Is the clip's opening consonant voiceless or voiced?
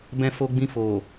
voiced